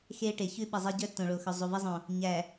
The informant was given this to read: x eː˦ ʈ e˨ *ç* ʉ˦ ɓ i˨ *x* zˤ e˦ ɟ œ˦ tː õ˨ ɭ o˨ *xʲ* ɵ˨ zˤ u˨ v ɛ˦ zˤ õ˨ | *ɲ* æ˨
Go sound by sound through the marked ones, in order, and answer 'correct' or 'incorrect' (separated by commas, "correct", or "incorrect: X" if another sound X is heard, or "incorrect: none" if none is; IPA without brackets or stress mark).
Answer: correct, incorrect: none, incorrect: x, correct